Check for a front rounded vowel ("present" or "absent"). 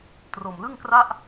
absent